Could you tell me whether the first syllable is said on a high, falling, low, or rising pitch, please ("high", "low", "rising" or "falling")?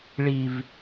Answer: low